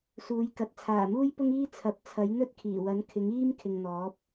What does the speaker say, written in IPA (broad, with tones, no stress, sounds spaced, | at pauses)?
s uː˨˧ j k ɐ˨˥ t̚ t͡sʰ aː˨˩ m uː˥ j p ʊ˥ ŋ iː˥ t͡sʰ ɐ˨˥ p̚ t͡sʰ ɐ˨˥ j n̪ ɵ˥ t̚ kʰ iː˨˩ w ɐ˨˥ n kʰ ɪ˨˥ ŋ iː˥ m kʰ ɪ˨ ŋ n̪ ɔː˨˥ p̚